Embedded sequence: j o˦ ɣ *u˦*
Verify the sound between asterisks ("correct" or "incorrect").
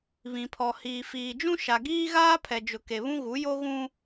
incorrect